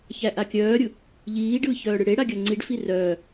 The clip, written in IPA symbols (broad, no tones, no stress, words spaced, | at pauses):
çæʔakʲœːɾʲɯ | ʎiːɖɯːç œːɽɯɽeɽa ɡʲœŋ͡ǀiɖfi rœː